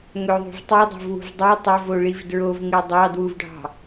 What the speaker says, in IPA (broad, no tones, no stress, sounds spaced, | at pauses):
ŋ ɵ ðˤ ṳ v tˤ i dˤ o̤ v w ṳ v dˤ u tˤ ɵ v o ɭ i v d ɹ o v ŋ ʉ dˤ ɑ d w u v ɖʱ ɑ̤